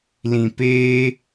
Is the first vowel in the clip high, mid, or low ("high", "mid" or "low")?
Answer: high